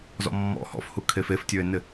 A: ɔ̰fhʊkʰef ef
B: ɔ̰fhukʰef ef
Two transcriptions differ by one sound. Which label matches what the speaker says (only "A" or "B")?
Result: B